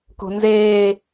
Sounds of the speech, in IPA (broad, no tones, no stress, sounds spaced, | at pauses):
k o̤ n z eː